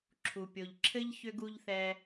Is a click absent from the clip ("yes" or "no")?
no